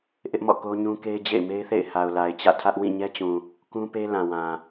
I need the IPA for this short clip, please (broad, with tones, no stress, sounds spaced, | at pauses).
ʔ ɪ˦ ʔ m ɔ̰˦˨ k o˦ ɲ ũ˦ k e˦ ɪ̯ d͡ʑ ḛ˦˨ ɪ̯ m e˦ ɪ̯ θ ḛ˦˨ ɪ̯ h a˨ ʊ̯ l a˨ ɪ̯ t͡ɕ ä̰˦˨ tʰ ä˦ ʔ w ĩ˦˨ ɲ ɛ˦ t͡ɕ ũ˨ | k ũ˦ p e˦ l ã˨ w ã˨